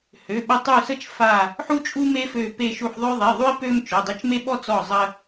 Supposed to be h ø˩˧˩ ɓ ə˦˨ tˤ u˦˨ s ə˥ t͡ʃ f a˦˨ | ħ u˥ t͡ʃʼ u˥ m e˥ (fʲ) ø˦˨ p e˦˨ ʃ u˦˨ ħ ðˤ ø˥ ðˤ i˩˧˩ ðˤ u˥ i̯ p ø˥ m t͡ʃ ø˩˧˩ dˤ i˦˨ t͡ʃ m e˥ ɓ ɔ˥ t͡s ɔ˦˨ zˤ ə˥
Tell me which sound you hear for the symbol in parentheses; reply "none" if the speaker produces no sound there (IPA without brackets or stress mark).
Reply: f